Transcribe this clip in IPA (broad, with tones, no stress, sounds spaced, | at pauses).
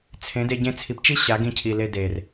t͡sʰ ẽ˨˦ d e˧ ɟ ẽ˧ t͡sʰ i˨ p t͡ʃ i˦ ɕ a˨˦ ɡ ĩ˧ cʰ i˨ l e˧ d e˨ r